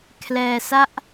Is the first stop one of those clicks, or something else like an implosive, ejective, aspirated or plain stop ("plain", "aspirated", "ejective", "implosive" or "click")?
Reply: aspirated